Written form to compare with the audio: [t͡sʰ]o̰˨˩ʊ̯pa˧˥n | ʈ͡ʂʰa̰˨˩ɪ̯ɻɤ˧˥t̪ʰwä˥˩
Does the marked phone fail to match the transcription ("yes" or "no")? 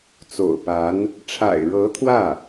yes